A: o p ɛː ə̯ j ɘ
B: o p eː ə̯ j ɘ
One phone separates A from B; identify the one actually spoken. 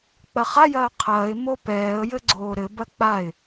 A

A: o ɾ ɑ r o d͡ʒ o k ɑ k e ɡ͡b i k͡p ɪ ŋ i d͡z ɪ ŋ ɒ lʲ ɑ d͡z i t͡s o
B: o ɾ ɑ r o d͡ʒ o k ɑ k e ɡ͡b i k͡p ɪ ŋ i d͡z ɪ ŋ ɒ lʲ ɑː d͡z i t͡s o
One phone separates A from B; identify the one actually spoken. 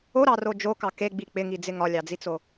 A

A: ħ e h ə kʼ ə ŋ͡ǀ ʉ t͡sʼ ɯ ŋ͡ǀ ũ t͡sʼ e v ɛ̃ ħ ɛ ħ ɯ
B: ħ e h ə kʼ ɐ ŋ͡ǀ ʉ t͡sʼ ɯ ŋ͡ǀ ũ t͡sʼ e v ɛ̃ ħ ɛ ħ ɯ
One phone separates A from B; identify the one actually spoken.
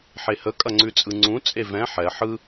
B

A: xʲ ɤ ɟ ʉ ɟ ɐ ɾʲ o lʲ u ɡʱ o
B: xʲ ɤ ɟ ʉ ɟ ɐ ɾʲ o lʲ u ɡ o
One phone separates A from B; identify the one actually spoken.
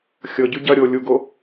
B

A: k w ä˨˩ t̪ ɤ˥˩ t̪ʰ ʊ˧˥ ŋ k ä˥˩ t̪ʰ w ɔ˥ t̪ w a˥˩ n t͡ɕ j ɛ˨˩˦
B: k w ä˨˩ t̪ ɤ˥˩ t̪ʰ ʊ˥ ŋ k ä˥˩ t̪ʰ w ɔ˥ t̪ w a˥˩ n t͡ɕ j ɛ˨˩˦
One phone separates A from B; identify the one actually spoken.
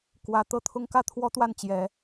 B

